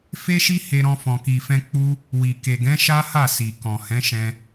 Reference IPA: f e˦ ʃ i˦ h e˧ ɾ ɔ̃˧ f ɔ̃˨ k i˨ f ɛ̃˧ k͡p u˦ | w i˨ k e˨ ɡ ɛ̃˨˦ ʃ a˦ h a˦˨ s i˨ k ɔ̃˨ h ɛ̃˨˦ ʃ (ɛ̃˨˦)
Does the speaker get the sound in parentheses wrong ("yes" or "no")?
yes